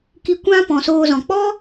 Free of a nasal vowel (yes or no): no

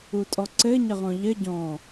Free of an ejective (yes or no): no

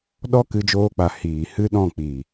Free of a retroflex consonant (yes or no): yes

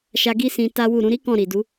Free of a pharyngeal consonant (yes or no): yes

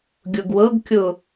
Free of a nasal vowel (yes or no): yes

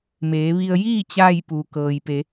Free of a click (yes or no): yes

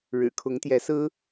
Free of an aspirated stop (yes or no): no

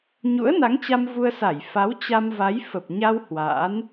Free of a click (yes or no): yes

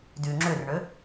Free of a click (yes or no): no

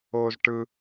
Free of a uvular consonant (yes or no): yes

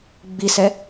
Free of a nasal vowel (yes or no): yes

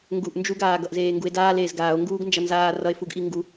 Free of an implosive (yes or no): yes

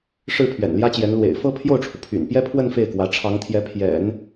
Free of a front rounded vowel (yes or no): no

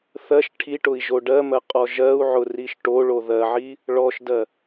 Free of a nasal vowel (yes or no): yes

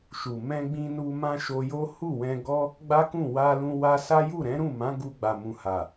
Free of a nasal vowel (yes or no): no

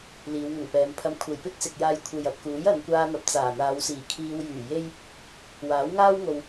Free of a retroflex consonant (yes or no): yes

